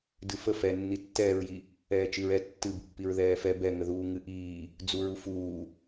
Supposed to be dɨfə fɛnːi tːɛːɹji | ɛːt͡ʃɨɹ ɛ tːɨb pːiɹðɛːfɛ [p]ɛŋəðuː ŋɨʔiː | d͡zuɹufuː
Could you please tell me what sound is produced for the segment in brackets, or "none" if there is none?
b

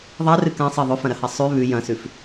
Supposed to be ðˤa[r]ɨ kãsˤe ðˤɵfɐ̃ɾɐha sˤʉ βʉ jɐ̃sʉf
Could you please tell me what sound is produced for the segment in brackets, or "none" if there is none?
r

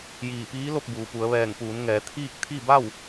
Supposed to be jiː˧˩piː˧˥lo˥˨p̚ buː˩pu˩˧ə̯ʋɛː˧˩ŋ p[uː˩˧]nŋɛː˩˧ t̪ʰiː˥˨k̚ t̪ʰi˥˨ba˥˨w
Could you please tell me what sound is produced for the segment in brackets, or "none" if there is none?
uː˩˧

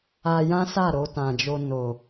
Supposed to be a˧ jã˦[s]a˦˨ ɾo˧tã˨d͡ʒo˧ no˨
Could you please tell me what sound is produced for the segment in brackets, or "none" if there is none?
s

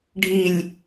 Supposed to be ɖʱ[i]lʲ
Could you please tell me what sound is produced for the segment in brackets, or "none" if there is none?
i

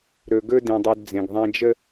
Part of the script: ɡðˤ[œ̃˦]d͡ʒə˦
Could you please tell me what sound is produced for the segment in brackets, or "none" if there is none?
æ̃˦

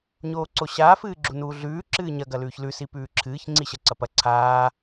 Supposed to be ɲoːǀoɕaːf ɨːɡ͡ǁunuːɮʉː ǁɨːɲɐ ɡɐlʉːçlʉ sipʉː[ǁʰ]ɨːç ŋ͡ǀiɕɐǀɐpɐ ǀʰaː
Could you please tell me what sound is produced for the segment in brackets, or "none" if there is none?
ǁʰ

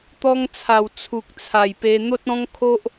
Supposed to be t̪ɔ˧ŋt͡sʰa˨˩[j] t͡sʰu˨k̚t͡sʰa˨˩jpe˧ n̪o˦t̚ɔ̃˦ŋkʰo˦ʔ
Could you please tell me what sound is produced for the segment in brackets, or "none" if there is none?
w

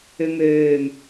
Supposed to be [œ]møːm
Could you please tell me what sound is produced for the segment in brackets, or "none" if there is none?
ø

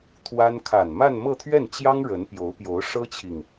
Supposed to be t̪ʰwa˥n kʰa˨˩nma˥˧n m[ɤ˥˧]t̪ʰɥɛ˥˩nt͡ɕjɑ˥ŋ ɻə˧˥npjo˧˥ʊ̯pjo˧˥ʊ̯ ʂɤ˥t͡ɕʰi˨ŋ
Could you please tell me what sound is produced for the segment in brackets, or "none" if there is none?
ɤ˥˧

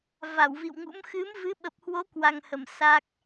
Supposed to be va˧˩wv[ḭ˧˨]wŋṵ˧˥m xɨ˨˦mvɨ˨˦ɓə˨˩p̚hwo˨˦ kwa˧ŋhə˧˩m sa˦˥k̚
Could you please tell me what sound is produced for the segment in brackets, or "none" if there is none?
ḭ˧˨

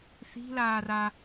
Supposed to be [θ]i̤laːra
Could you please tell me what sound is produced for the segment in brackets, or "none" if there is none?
θ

